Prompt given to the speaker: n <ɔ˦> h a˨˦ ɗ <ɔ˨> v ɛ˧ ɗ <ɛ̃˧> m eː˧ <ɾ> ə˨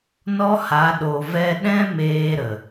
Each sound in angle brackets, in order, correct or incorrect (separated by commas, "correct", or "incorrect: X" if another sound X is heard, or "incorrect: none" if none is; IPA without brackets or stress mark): correct, incorrect: o˨, incorrect: ɛ̃˦, correct